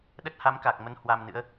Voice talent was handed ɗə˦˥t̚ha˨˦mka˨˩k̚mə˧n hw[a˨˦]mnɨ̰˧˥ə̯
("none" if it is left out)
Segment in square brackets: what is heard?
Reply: a˧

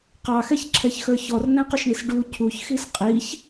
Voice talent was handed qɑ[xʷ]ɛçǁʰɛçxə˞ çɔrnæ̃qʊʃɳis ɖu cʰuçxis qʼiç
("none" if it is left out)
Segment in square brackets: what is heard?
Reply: x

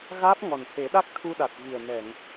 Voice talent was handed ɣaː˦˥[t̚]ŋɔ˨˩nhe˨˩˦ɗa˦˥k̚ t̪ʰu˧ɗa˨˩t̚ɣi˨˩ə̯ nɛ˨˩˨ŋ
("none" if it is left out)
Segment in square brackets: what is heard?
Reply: p̚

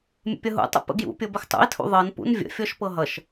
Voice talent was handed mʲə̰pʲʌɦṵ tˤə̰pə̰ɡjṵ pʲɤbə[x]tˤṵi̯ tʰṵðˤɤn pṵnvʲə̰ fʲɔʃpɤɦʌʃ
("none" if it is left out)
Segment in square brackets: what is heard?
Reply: x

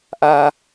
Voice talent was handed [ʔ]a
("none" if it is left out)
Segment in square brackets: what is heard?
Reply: ʔ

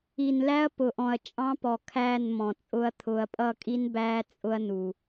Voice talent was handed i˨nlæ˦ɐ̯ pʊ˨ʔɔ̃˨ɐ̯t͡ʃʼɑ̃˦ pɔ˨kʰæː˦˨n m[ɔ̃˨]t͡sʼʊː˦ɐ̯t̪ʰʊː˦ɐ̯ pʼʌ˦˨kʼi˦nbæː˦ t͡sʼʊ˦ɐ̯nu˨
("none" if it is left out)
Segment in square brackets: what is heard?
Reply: ɔ̃˨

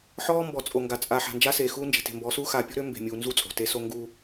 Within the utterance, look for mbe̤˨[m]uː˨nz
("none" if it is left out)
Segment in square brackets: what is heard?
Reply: mʲ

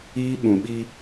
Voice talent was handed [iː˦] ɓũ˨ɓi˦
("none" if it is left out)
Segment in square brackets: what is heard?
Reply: iː˦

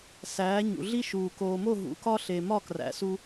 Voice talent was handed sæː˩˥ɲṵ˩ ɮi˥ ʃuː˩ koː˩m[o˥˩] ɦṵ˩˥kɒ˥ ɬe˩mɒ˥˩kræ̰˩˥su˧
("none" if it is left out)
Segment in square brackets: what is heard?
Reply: o˥˩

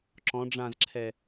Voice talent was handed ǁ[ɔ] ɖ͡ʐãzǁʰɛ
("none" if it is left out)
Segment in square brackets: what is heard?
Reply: ɔ̃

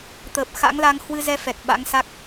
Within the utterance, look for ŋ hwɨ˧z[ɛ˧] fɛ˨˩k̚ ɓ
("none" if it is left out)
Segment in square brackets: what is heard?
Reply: ɛ˧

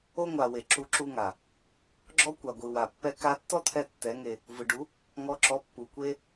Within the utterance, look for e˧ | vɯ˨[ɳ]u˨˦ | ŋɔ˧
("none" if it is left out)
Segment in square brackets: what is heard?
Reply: ɖ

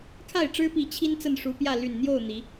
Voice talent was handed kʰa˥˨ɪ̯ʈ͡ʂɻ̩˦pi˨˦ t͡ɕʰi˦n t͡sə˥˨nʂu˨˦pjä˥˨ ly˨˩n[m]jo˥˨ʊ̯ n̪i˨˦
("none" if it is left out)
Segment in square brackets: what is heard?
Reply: n̪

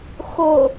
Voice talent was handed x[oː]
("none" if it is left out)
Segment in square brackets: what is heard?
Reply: o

